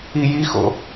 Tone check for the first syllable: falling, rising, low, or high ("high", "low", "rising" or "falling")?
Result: low